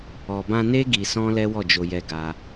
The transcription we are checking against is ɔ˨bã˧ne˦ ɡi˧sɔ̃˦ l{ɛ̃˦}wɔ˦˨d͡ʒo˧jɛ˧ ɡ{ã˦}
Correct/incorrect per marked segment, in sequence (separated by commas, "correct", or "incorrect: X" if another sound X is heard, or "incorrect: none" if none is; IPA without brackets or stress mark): incorrect: ɛ˦, incorrect: a˦